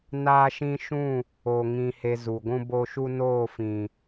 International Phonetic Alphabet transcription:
naː˦ʃĩ˦ ʃũ˦˨ | o˧ŋĩ˧ he˧zu˨ɡʷũ˦bo˦ ʃu˦noː˦˨fĩ˨

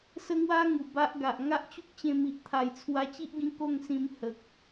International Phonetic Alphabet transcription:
sə˦ŋwa˦ ŋu˨˩ba˦ʔɡa˨ʔ ŋa˦ʔt͡ɕu˦k̚t͡ɕẽ˧mi˨ʔ t̪ʰa˨˩jt͡sʰwa˧t͡ɕi˦ʔɡĩ˧ ko˥˧ŋsĩ˧m hə˨k̚

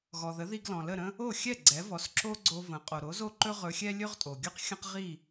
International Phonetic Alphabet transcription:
ɣɔ˩ðə˩˥ði˧ɡ lɔ̃˩lə˥˩ɾə̃˥ | o˥˩xʲɛ˥˩ ɡ͡ǀɛ˩˥vɔ˩˥sǁo˥ɡ͡ǀo˧ və̃˩˥ qʼo˩ɾo˩˥zo˥˩ǃɵ˥ ʁɵ˧xʲɛ˥ lʲɵ˥ʁtʼo˩ɡʲɵ˥q xʲə̃˥qʁi˥˩

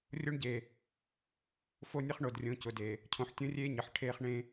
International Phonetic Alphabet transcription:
rʲo˦ɳɟe˨ | fo˦nʲə˦χ ɳo˨drʲõ˨˦cʊ˨de˨ | cʰõ˨ħtʲõ˦rʲeː˦ ɲə˨ħ ʈʰeː˦χɳẽ˦

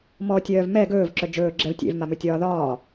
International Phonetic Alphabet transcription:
mɔtʲœːv mɛ ɡɵːvǁœ d͡ʒɵːɡ͡ǁɛv tʲḛvmamɵtʲɒː ðɒː

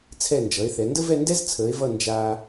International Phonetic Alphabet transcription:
t͡sʰɛ˧˩nd͡ʒʌ˩˧e̯ θɛ˩˧ndə˥vɛ˥˧ndɛ˥z t͡sʰəː˩˧e̯vʌ˧˩ nd͡ʒaː˧

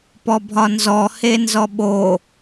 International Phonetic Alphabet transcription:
pɔbʱɒnzɔ henzɔɓo

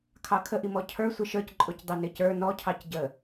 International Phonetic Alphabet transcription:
kʰɑkʰəʔimɔ cʰə˞ sʷɪʃə˞c ǃʼʊcdˤinɪcə˞ nɔcʰɑc ɟə

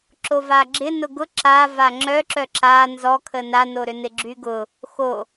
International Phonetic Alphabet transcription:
ǁovaɡ͡ǁɪ nʊɡʊ ǁa vaŋ͡ǁœǁœ ǁa nzɔkʰə nanoɾʏnɪ ɡ͡ǁyɡʊ | xo

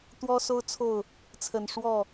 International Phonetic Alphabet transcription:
t̪wɔ˦so˦ʊ̯ t͡sʰo˥˨ʊ̯ | t͡sʰə˨˩nʂwɔ˥˨

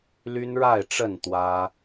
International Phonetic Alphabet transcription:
ly˦nɻa˥˨ɪ̯ʈ͡ʂə˥˨n t̪wä˦

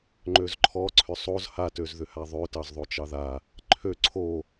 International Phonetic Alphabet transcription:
ŋ͡ǃøzǃʰɔ ǀʰʏsˤoz ha tøzðʏhaðˤø tɑzðˤot͡ʃɑða | ǃʰø ǀʰo

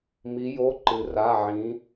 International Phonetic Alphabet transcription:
mi˩˧jo˩˧˩ǃɨ˩ra˩˧˩ ʕĩ˩˧

